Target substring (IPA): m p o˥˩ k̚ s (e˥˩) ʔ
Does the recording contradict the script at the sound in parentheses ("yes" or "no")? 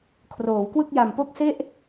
no